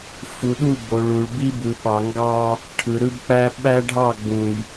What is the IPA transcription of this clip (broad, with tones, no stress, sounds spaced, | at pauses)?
f u˨ ɗ u˦˨ b o˨ ɭ u˨ ɭ b i˦ b ɯ˨ ɓ ɑ˨ ŋ ɡ ɑ˦ | ʈʰ ɯ˨ ɾ ɯ˦ b k͡p æ˦ ɓ æ˦ ɖʱ ɑ˦˨ ɡ͡b ũ˨ j